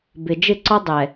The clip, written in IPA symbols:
b ɪ˨ d͡ʒ ɪ˦˨ ǀ ɔ˦ dˤ ɛ˨

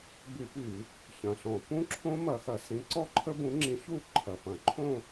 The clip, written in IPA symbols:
b y˧˩˧ p y˧˩˧ | ç ɐ̃˨˩ ɬ ɔ̃˧˩˧ p ũ˦˥ ǁʰ õ˦˥ m ɐ˧˩˧ x ɐ˧˩˧ s ĩ˨˥ ǀ ɔ˥˧ ǃʰ ə˦˥ b ũ˨˥ ŋ͡ǁ ĩ˨˥ ç u˥˧ ǃʰ ɐ˨˩ p ɐ̃˧˩˧ ǃʰ õ˥˧

